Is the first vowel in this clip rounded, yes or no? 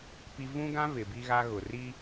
no